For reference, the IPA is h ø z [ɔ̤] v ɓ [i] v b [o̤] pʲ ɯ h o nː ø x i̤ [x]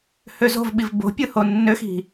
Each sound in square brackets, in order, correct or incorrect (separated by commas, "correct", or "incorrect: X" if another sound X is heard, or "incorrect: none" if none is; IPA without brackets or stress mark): incorrect: o̤, correct, correct, incorrect: none